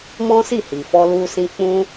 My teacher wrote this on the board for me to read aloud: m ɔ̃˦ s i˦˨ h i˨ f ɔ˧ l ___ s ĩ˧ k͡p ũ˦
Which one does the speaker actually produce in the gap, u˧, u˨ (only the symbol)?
u˧